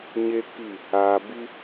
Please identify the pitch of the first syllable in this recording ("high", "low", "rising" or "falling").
high